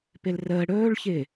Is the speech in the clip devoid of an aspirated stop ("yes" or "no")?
yes